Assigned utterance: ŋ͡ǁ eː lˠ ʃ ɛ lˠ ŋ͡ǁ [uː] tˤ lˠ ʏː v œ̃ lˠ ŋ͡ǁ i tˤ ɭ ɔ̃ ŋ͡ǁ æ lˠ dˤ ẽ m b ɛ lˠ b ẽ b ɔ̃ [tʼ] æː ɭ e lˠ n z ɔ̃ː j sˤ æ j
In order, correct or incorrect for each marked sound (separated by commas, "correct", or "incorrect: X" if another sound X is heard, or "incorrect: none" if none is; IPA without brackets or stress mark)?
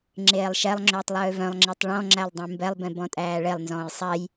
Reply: incorrect: ʏː, correct